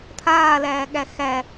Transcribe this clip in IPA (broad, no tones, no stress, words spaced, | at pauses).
t̪ʰaːlæːɠæ xæ